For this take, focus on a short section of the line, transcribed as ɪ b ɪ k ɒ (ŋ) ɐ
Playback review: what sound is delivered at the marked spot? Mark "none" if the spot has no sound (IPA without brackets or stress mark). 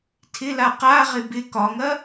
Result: ŋ